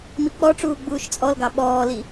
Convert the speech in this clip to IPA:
m i k͡p ɔ ʈ͡ʂ uː ɡ͡b uː ʃ t͡sʼ ɔ l ɡ ɑ ɓ ɔː l i

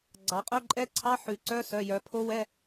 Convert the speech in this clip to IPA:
ɡ͡ǀ ɑ˩˧ qʼ œ˧˥˧ ǃʼ ɛ˧˥˧ ǀʰ ɑ˧˥˧ ħ ʉ˩˧ ǀ œ˧˥˧ s œ˩˧˩ j œ˩˧ pʰ o˦˥ w ɛ˧˥˧

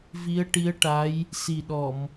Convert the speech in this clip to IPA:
v i˧˥ ə̯ ʈ i˧˥ ə̯ ʈ a˧˥ j | s i˨˩ ɗ ɔ˨˩˨ m

